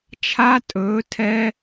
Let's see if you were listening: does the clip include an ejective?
yes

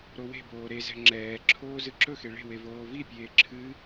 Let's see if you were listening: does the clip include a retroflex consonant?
yes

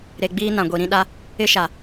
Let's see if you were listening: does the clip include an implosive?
yes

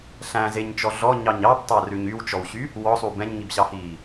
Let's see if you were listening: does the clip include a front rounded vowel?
yes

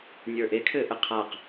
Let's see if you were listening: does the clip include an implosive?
no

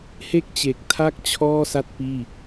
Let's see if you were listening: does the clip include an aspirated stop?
yes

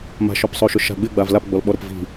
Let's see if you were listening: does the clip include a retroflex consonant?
no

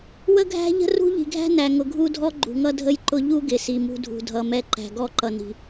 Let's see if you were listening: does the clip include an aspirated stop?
no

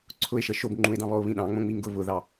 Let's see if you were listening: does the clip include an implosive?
yes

